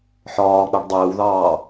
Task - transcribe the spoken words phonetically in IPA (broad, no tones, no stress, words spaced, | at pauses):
ħɒːk͡pɛɖ dˤɪːwðɑː